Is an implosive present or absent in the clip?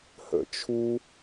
absent